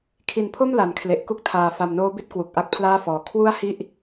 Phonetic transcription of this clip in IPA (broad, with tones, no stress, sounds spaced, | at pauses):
kʰ i˨˩ n pʰ o˥˩ m l a˨˩ n kʰ l e˨˩ ʔ k u˥˩ k̚ tʰ aː˨˩ f a˨˩ m n oː˦˥ b i˦˥ t̚ k w u˨˩ k̚ ʔ a˥˩ k̚ pʰ l aː˥˩ f ɔː˩˦ kʰ w u˥˩ a̯ h i˥˩ ʔ